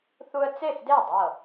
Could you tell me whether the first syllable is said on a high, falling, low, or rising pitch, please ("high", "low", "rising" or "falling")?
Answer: high